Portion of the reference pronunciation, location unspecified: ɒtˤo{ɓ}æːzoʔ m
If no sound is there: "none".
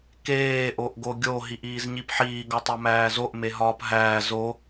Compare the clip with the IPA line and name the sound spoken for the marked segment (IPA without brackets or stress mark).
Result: m